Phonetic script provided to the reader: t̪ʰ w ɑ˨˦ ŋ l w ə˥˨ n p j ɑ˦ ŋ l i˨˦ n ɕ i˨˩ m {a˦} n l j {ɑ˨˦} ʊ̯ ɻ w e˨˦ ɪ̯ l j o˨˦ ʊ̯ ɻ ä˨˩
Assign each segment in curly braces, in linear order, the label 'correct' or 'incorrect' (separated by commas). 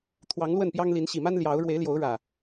correct, correct